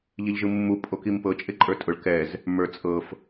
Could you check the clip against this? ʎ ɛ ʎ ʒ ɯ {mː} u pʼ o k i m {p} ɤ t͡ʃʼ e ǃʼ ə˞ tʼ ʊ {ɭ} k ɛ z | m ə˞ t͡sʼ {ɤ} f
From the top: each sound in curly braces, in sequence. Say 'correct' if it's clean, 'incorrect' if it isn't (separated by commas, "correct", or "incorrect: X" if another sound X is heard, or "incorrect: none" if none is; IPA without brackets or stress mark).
correct, correct, correct, correct